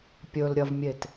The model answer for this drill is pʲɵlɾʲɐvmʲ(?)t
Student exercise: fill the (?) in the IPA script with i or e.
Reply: e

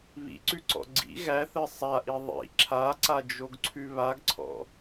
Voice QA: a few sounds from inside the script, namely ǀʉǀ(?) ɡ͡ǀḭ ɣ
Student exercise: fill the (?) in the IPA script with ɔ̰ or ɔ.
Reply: ɔ̰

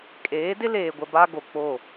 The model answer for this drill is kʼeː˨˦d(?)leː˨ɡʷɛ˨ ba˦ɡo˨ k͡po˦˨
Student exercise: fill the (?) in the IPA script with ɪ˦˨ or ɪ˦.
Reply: ɪ˦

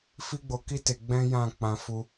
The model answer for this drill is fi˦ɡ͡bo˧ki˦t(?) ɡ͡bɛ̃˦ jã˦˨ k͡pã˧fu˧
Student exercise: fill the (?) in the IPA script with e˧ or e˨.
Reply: e˧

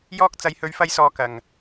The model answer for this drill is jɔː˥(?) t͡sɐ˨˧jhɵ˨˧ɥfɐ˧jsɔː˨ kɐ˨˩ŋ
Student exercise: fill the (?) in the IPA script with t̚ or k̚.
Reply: k̚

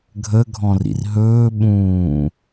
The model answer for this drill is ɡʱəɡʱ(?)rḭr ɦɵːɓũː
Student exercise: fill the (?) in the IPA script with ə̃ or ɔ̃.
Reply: ɔ̃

